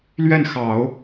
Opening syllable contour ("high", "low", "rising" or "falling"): falling